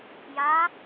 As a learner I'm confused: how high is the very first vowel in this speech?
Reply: low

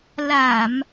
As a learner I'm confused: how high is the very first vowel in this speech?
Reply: low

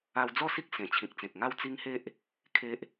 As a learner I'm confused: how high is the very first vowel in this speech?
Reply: low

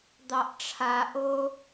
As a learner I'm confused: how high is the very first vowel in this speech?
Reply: low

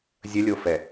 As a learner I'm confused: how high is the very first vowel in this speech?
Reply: mid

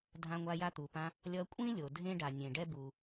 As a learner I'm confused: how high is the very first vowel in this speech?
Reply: low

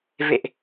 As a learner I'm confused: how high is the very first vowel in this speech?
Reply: mid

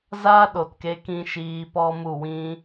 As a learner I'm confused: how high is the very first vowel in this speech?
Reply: low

